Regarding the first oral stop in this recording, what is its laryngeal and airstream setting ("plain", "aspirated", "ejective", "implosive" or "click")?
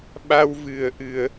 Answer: implosive